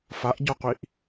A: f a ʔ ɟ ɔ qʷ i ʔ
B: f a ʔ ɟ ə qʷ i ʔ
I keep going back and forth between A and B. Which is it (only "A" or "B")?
A